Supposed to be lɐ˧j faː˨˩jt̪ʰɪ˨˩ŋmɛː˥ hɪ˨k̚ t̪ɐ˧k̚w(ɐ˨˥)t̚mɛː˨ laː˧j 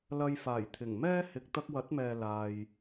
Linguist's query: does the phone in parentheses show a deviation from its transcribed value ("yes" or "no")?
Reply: no